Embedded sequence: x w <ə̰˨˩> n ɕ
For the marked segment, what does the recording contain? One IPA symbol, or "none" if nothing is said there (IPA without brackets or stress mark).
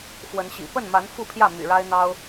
ə˨˦